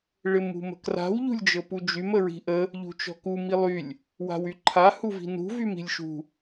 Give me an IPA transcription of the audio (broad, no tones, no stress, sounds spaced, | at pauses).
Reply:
ɭ ɪ m ṳ m ə̤ k r a̤ w ʎ ṳ lʲ d͡ʒ ɤ p u d͡ʒ y m ə ɹ i̤ ʔ ə | ʎ ṳ t͡ʃ ɔ̤ k u m i lˠ y lʲ | w a̤ w y ǃʰ a h u v i̤ n ṳ v y m i̤ lʲ ʃ ṳ